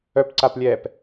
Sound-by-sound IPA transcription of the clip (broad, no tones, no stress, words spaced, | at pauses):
œpǀaplʲɛːp